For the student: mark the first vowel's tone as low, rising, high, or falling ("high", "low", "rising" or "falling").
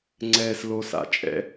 low